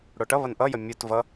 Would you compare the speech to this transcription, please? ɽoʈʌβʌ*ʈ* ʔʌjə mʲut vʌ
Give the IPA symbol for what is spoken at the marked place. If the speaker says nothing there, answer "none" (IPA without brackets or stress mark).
n